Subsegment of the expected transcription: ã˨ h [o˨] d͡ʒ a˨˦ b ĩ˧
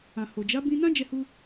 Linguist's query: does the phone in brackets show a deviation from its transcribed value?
no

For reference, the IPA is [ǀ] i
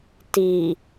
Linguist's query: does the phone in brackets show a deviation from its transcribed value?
yes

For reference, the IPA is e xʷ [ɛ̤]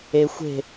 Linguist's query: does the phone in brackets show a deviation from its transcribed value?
yes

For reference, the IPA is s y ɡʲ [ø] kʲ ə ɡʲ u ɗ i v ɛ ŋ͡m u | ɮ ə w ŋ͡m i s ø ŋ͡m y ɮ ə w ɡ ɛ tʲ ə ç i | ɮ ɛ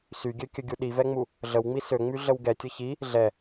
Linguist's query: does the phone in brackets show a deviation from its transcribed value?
no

